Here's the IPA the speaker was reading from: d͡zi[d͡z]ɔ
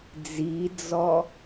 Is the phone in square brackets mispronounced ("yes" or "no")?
no